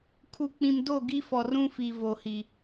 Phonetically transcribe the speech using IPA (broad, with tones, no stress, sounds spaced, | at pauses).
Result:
kʰ u˨ k͡p ĩ˨ m d o˦˨ ɡ i˦ f ɔ˨ r ũ˦ f i˨ v o˨ h i˨